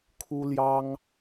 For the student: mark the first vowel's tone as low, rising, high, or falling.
high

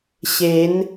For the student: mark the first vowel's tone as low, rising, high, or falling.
rising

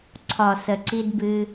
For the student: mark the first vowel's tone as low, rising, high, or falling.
low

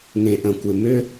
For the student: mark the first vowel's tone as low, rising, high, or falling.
low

